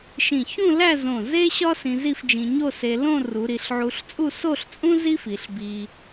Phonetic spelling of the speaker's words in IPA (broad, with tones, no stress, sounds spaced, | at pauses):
ʃ ĩ˧˩ ç ũ˥˧ l æ˥˧ z õ˧˩ z e˥ ɕ ɒ˥ s ĩ˧ z i˥˧ f d͡ʒ ĩ˧ ɲ o˥˧ s e˧ l õ˥˧ r u˩˧ ɾ i˩˧ ɬ ʕ u˧ ɬ t͡sʼ u˥˧ s o˥˧ ɬ t͡sʼ ũ˥ z i˥ f i˩˧ ɬ b i˧